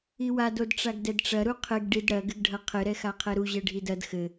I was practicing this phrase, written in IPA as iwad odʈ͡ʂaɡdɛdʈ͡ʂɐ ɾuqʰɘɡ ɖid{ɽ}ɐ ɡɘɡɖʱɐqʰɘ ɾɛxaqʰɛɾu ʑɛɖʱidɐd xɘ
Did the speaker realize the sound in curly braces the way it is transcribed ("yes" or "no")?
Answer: yes